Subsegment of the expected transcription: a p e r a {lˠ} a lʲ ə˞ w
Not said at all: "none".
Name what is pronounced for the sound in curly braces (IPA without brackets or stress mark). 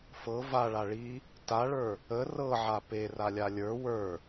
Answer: lʲ